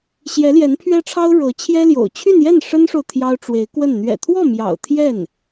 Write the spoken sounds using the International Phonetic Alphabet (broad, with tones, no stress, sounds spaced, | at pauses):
ɕ j ɛ˧˥ l j ɛ˧˥ n pʰ ɥ ɛ˥ ʈ͡ʂʰ ɑ˥ ʊ̯ ɻ ɤ˧˥ t͡ɕʰ j ɛ˥ l j o̰˨˩ ʊ̯ t͡ɕʰ y˥˧ n j ɛ˥˩ n ʂ ə˥ n ʂ o˨ ʊ̯ t̪ʰ j ɑ˥ ʊ̯ ʈ͡ʂ w e˧˥ ɪ̯ k w ə˥˩ n n̪ ɥ ɛ̰˨˩ t̪ʰ w ɔ˥˩ m j ɑ̰˨˩ ʊ̯ t̪ʰ j ɛ˥˩ n